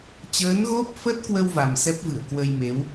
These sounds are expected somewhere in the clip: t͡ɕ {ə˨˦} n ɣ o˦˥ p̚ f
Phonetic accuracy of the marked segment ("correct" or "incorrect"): incorrect